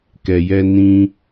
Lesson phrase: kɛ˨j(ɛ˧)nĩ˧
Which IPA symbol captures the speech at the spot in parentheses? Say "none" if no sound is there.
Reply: ɛ˧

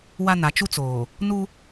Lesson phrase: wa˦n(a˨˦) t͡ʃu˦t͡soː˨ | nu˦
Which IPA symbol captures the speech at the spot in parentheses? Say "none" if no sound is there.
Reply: a˨˦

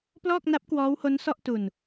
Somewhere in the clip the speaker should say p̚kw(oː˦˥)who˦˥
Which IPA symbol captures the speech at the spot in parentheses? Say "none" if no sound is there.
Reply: ɔː˦˥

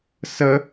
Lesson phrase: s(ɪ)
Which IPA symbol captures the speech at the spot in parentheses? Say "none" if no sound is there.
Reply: ə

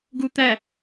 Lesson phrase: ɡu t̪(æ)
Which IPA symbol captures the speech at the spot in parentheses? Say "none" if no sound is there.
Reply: æ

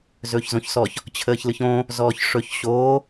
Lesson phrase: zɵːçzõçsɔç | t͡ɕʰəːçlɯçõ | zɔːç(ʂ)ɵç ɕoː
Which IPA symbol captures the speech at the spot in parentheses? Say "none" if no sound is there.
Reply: ʂ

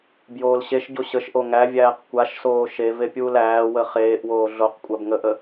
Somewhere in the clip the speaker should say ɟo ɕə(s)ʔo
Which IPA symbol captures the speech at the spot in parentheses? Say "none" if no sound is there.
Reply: ʃ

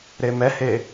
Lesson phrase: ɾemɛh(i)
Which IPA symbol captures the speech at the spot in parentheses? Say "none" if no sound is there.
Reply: e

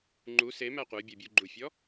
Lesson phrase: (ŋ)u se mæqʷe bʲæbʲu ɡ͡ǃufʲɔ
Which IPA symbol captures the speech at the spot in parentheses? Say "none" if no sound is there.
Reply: ŋ͡ǃ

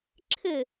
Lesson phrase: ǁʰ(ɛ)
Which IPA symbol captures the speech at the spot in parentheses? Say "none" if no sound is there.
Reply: ɘ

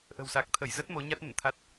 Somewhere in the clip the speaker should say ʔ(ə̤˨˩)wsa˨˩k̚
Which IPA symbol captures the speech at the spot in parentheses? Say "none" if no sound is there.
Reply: ə̤˨˩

